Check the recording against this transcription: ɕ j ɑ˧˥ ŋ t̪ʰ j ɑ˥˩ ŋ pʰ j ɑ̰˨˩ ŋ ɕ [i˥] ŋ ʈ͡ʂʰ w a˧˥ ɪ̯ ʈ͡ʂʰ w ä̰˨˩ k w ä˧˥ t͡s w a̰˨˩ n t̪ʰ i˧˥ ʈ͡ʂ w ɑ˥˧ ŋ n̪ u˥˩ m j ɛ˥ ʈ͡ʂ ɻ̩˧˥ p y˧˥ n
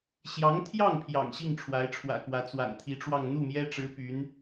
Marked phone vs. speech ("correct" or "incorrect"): incorrect